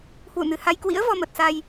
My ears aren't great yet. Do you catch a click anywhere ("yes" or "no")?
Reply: no